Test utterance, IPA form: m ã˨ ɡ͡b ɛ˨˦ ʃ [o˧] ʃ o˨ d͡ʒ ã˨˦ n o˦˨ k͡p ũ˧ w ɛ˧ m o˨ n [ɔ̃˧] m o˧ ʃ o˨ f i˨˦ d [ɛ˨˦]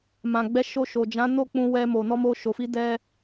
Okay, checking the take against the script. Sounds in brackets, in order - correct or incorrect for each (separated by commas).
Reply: correct, incorrect, incorrect